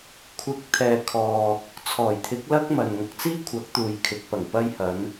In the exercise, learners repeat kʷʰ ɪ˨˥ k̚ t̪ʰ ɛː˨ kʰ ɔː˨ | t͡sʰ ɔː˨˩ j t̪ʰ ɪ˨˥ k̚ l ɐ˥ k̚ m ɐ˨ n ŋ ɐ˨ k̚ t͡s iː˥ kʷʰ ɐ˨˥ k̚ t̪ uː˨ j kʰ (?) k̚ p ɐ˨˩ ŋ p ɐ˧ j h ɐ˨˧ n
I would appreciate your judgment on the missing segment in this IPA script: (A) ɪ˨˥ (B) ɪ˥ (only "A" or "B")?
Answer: A